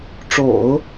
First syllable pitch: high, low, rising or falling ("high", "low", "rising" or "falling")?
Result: low